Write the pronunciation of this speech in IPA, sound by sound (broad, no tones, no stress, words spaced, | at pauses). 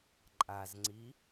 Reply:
ǃʼazŋ͡ǀi